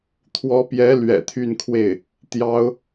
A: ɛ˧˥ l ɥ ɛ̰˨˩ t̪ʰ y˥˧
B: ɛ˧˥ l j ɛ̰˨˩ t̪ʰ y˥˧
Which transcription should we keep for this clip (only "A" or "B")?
A